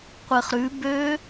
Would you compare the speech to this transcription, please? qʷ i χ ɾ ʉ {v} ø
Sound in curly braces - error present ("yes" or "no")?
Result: yes